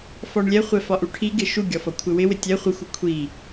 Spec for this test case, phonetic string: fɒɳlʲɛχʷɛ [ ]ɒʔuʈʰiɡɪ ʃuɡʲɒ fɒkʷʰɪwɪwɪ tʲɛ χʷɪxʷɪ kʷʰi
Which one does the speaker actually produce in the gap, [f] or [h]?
f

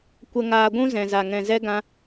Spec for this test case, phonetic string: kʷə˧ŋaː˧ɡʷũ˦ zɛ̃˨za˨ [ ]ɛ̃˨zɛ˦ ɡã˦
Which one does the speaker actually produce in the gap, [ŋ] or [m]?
ŋ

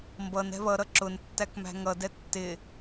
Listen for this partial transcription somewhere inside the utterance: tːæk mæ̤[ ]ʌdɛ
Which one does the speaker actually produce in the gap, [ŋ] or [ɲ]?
ŋ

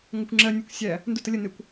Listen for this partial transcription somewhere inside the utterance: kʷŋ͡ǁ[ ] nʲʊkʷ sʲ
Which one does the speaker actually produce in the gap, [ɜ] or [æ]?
ɜ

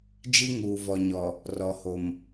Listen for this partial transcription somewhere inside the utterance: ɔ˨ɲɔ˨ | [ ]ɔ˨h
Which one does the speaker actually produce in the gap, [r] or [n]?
r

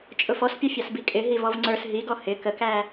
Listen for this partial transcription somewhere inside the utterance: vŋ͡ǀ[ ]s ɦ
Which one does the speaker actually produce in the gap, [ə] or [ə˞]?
ə˞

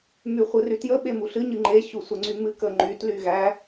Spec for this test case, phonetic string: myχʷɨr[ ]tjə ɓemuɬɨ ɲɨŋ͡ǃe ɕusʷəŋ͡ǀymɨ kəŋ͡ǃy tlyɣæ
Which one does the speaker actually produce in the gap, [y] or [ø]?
y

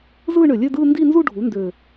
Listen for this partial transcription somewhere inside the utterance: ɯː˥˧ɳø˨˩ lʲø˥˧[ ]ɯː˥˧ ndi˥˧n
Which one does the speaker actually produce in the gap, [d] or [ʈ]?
d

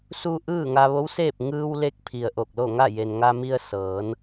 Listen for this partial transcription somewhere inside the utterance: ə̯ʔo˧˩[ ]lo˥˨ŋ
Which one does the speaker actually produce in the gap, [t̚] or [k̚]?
k̚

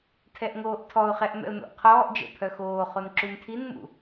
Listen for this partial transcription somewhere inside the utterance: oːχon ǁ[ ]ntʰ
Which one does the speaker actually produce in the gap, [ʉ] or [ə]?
ʉ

